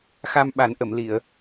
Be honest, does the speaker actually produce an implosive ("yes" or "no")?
yes